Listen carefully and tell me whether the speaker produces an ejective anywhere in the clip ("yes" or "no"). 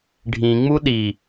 no